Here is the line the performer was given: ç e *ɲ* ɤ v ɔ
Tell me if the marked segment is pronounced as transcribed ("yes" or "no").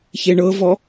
no